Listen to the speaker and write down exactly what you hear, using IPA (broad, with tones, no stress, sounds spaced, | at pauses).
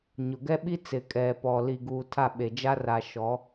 ɲ ʊ˨ ɡ ɛ˦ ɓ i˦ t͡s ɪ˨ kʼ ɛ˨ p ɔ˨ l i˨ ɡ uː˨ tʰ a˦˨ ɓ e˨ d͡ʒ a˦ r a˨ ʃ ɔ˨˦